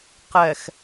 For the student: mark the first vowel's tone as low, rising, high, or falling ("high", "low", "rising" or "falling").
low